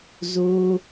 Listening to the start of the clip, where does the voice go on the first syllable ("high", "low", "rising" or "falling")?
high